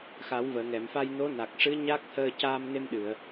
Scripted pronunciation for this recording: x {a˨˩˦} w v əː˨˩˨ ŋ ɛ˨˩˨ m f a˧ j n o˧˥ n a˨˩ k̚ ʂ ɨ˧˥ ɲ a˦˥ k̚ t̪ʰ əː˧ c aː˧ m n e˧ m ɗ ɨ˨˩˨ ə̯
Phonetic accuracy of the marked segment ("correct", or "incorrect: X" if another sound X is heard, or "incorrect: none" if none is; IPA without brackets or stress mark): correct